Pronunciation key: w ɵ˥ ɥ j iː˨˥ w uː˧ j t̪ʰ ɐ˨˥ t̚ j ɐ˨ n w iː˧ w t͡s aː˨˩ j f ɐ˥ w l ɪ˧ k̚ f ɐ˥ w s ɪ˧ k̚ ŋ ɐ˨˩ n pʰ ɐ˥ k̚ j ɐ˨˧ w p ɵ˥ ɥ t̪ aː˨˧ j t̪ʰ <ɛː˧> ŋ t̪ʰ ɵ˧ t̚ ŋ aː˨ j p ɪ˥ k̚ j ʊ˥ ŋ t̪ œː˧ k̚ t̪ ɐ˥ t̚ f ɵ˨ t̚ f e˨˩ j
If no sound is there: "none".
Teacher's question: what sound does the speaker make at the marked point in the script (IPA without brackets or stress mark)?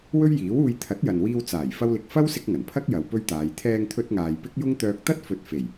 ɛː˧